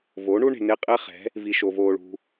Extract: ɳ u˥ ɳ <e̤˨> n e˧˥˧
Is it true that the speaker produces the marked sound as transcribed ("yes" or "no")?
yes